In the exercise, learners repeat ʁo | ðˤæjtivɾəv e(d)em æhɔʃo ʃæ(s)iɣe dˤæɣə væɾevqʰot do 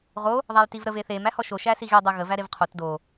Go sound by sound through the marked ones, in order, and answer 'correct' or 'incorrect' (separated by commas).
incorrect, correct